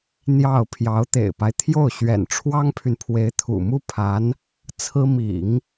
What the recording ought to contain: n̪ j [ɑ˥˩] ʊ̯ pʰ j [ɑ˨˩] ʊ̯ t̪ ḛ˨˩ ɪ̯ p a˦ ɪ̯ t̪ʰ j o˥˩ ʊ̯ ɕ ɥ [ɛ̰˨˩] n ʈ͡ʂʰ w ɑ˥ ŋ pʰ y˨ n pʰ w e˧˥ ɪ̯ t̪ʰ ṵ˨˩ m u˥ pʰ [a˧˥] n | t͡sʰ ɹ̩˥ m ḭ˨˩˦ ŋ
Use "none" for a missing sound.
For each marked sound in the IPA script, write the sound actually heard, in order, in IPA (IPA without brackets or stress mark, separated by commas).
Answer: ɑ˥˩, ɑ˧˥, ɛ̰˨˩, a˧˥